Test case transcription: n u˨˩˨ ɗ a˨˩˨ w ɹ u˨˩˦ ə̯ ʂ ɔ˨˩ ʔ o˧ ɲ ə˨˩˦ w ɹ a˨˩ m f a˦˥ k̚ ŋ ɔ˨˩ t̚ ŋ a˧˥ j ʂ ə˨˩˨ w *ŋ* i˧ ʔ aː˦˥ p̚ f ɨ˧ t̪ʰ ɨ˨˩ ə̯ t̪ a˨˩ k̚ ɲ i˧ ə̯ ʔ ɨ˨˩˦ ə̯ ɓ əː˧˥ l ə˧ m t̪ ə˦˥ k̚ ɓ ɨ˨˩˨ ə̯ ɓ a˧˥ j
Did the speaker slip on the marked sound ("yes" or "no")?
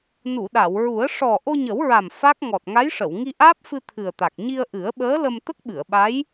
no